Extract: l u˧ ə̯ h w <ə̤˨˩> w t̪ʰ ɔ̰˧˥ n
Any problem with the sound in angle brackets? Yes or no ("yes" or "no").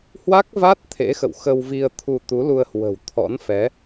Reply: no